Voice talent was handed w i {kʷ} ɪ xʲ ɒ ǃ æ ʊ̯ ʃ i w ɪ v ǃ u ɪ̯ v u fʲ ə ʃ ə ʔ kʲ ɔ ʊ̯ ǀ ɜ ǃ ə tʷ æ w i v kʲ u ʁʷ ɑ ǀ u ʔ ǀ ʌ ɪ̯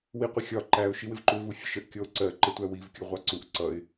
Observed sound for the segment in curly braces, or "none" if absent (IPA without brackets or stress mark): qʷ